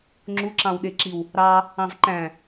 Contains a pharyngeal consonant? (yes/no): no